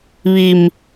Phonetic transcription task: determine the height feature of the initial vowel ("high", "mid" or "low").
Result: high